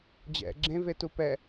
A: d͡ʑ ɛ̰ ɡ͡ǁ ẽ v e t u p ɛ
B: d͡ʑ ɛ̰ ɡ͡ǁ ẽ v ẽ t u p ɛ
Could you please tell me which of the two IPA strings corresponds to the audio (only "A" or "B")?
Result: A